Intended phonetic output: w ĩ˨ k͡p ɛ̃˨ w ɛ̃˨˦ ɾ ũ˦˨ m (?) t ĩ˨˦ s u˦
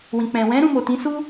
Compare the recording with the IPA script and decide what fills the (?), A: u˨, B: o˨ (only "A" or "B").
B